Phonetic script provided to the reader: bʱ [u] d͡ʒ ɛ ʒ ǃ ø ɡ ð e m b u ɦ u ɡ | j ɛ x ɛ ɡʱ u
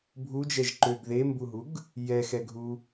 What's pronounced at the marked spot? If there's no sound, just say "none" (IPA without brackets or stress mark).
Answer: u